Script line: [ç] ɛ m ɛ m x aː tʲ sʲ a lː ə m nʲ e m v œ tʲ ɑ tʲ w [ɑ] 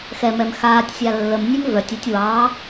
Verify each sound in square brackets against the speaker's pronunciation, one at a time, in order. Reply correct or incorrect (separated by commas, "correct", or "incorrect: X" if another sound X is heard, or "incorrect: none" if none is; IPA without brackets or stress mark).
incorrect: x, correct